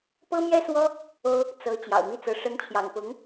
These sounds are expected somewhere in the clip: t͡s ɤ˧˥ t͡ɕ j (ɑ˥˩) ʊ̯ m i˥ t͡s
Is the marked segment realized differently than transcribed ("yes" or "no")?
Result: yes